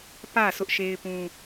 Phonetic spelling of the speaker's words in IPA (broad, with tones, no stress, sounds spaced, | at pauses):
p ä˦˨ s ʊ˦ ʔ ʃ e˦ ɪ̯ p ũ˦